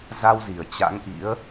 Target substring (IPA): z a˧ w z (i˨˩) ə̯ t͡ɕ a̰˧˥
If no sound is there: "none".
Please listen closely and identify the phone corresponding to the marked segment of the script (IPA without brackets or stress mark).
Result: i˨˩